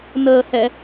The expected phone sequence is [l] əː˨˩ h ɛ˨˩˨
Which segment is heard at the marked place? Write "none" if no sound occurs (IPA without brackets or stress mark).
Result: n